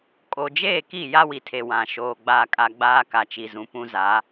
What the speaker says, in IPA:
kʼ o˨ d͡ʒ eː˦˨ k i˦˨ j a˦ w i˨ tʰ e˨ w ã˨ ʃ oː˨ ɡ͡b a˨ kʼ a˨ ɡ͡b aː˦ k a˨ t͡ʃ i˨ z ũ˨ p ũ˦ z a˨˦

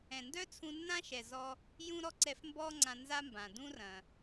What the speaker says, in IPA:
ɛ̃˩ n d œ˥ t͡sʰ ũ˧ nː ã˥ ʃ ɛ˩ z ɔ˧ | j ũ˥ ɾ ɔ˥ ǀ ɛ˧ f m b ɔː˥ ŋ͡ǀ ã˧ n z a˥ m b ã˩ d ũ˥ r ɐ̃˩

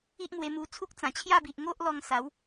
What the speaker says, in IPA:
i˦ ʔ m w e˧ m u˧ t͡sʰ u˦ k̚ t͡s ã˨˩ t͡ɕʰ j a˥˧ b i˨ ʔ ŋ o˦ ʔ l ɔ˧ ŋ s a˨˦ w

